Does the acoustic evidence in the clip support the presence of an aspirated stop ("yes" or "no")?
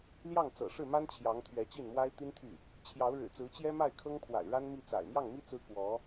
yes